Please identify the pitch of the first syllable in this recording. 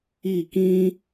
falling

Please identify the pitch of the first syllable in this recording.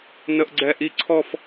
high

